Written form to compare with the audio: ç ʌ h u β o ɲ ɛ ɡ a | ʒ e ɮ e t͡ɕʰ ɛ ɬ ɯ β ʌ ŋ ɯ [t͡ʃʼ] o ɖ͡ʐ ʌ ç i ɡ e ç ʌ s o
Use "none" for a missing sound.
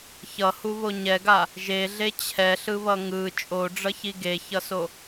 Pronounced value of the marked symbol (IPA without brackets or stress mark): t͡ʃʼ